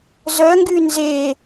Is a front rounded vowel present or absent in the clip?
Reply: present